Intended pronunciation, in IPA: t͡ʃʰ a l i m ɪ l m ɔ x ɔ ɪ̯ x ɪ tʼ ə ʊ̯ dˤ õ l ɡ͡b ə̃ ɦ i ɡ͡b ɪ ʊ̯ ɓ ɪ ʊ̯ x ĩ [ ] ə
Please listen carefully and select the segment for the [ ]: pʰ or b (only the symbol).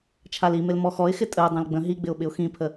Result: pʰ